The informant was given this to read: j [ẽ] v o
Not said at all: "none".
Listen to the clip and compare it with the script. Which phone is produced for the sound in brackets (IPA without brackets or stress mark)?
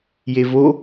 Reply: e